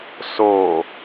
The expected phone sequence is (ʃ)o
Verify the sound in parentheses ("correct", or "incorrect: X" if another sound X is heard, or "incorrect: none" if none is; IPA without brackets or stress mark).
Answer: incorrect: s